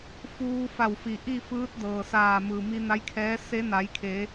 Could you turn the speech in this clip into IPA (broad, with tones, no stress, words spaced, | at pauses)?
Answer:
fuː˧fa˧˩wfi˩ ʔi˥˨fɯː˧˥t̚ dɤː˩saː˧˩ mɯː˩mi˧ na˧˥jkʰɛː˧˥ se˧˥na˩˧jkʰe˩˧